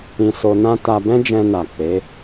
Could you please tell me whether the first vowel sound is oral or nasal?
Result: nasal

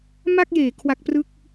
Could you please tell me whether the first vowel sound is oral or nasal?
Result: oral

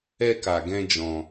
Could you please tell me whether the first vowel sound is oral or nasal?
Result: oral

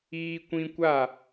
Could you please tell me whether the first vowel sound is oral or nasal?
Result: oral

